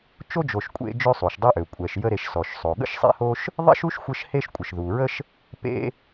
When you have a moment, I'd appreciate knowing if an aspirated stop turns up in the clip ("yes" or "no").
no